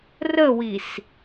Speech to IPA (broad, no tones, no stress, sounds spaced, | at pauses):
r ə w i s